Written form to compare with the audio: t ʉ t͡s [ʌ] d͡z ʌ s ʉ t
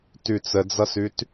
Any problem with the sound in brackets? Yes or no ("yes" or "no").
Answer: yes